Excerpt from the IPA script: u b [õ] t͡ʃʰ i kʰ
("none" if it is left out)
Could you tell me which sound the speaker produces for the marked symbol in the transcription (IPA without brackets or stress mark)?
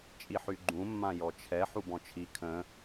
ɔ̃